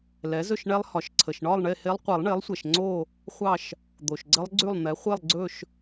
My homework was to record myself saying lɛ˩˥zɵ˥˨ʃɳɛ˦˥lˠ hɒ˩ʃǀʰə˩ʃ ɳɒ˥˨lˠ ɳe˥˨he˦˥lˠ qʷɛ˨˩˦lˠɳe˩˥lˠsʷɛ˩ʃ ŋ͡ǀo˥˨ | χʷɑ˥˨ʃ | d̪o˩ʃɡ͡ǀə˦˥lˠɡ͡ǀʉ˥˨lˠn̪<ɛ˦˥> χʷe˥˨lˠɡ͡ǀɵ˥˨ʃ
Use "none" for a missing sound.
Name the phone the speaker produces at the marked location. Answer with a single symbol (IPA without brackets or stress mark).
ɛ˩˥